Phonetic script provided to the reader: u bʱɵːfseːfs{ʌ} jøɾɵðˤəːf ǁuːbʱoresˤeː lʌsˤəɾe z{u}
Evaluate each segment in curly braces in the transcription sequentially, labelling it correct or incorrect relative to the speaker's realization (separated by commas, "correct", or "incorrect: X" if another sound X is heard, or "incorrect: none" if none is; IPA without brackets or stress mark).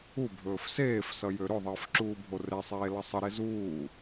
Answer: correct, incorrect: uː